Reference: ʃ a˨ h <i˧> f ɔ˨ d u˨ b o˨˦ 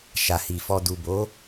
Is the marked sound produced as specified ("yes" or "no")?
no